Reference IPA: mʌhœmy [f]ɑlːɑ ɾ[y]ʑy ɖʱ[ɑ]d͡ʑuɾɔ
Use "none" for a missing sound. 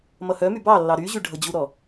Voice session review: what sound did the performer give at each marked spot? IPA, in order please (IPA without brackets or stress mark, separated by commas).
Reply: b, y, ʌ